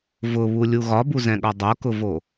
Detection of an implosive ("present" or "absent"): present